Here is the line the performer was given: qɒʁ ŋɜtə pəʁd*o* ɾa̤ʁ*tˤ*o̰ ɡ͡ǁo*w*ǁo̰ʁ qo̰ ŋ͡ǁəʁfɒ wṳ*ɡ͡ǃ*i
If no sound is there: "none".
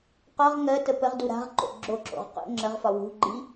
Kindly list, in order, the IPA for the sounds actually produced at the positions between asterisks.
u, ǃ, none, ɡ͡ǃ

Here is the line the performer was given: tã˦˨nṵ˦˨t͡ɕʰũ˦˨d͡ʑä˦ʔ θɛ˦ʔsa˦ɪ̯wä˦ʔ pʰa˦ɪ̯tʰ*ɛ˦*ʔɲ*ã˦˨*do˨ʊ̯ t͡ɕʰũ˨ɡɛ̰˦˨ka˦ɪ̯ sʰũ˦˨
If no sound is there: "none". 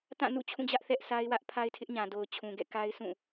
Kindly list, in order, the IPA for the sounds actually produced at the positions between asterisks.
ɪ˦, ã˨

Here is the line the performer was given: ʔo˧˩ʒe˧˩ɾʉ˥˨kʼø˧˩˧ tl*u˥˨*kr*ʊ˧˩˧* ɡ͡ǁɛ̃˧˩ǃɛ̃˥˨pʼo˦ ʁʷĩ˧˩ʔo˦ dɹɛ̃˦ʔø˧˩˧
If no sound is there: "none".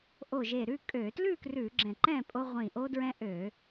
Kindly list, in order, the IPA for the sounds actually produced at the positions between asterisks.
ʉ˥˨, ʉ˧˩˧

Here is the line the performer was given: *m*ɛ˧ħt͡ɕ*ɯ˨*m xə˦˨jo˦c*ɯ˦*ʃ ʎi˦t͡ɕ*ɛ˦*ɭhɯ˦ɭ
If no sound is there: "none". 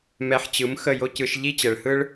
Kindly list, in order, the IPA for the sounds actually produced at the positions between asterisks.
m, ɯ˨˦, ɯ˧, ɛ˨

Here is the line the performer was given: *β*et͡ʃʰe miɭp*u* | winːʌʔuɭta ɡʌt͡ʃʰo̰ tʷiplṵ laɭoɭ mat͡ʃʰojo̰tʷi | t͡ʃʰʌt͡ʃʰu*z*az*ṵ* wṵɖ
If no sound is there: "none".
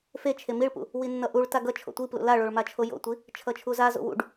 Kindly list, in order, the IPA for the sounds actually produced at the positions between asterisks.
f, ṵ, z, o̰

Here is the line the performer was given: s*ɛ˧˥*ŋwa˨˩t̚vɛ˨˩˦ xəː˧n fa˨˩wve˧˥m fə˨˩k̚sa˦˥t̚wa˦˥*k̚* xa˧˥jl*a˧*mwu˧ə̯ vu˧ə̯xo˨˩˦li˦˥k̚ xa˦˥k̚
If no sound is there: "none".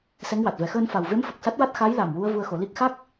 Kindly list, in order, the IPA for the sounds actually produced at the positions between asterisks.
ɛ˧˥, t̚, a˨˩

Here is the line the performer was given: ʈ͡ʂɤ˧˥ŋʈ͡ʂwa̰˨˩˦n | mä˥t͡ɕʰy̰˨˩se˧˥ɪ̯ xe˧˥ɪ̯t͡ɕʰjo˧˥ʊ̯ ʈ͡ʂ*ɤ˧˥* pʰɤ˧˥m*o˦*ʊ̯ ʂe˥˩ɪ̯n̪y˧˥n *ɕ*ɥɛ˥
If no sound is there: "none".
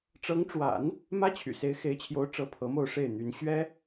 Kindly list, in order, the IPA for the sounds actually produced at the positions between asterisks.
ɤ˧˥, o˥˧, ɕ

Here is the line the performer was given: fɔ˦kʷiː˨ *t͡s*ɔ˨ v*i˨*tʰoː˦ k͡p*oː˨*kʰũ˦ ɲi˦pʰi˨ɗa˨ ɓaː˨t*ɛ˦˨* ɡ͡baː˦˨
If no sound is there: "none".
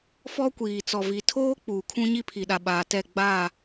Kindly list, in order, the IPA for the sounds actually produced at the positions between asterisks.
t͡s, i˨, uː˨, ɛ˦˨

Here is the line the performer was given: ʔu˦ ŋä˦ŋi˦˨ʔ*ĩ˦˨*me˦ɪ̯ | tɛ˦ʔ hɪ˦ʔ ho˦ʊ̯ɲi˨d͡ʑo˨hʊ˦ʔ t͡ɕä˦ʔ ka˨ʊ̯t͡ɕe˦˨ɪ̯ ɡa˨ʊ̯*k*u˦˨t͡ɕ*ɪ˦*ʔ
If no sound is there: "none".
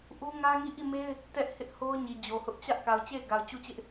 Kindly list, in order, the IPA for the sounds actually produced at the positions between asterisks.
i˦˨, t͡ɕ, ɪ˦

